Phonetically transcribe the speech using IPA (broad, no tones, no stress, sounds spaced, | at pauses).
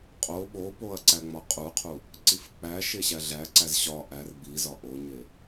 qʼ o ɓ o p o ɐ̯ ǀ æ ŋ͡m ɒ qʼ u qʰ u | ǀ i f k͡p æ ʃ e ɕ æ ɮ æ ǀ æ z ɕ ɒ ʔ æ r b i z ɒ ʔ o ɲ e